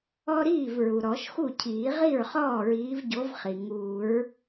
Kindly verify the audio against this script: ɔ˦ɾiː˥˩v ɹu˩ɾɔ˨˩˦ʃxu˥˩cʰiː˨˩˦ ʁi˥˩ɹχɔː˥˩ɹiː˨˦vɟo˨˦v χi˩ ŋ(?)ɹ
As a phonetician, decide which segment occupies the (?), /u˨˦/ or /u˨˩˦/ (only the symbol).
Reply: u˨˩˦